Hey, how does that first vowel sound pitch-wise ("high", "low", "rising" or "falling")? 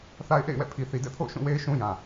high